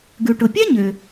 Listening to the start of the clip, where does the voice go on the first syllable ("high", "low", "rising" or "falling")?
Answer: low